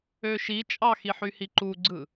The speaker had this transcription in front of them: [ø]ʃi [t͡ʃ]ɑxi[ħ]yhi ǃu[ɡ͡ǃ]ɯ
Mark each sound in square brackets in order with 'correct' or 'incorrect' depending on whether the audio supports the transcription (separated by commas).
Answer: correct, incorrect, correct, incorrect